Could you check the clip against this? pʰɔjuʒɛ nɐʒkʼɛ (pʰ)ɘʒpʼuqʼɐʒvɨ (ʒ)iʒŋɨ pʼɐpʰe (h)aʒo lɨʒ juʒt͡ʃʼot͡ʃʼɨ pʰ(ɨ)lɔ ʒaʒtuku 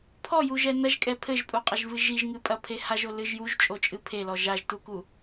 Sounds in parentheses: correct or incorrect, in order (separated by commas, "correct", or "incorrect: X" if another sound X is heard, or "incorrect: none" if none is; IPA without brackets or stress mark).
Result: correct, correct, correct, incorrect: e